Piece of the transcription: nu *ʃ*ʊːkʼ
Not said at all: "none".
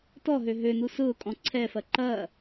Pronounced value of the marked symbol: s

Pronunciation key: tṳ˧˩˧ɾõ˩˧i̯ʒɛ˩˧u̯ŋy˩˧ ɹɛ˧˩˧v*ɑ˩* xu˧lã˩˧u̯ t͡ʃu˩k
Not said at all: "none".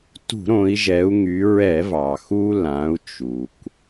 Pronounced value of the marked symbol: ɑ˩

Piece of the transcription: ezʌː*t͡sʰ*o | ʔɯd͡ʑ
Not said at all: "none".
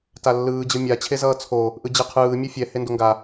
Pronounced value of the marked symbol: t͡sʰ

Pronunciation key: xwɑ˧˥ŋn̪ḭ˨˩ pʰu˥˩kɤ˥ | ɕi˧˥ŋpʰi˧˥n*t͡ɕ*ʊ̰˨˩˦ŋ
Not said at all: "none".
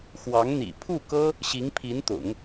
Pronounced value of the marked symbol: t̪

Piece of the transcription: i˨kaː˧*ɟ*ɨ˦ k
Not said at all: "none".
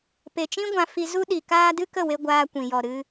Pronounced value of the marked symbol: d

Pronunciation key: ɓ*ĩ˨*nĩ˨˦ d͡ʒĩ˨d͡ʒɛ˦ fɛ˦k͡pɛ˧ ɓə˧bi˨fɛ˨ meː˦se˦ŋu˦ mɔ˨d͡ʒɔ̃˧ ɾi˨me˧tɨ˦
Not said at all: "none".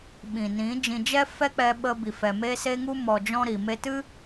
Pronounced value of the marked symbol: ĩ˨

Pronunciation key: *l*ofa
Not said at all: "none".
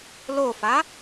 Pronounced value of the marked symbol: l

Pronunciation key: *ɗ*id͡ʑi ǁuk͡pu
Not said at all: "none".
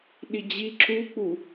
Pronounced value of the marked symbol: ɗ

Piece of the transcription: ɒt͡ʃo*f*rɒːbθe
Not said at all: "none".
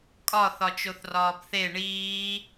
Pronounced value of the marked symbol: θ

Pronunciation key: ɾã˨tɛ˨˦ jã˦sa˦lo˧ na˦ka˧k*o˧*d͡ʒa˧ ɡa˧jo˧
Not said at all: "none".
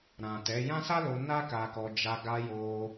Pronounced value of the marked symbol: ɔ˧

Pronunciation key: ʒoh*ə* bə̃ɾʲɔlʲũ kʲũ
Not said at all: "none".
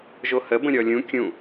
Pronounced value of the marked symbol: ə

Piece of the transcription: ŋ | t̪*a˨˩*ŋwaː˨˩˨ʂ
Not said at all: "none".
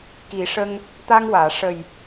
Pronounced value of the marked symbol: a˧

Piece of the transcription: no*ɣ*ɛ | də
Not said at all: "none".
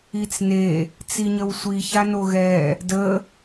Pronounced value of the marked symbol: ɣ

